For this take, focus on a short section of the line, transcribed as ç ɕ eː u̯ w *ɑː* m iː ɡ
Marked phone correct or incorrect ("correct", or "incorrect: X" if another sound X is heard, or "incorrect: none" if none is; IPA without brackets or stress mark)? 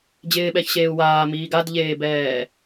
incorrect: aː